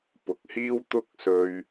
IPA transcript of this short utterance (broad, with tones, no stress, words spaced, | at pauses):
pʊ˨k̚hiː˥wt̪ʊ˥k̚sɵ˧ɥ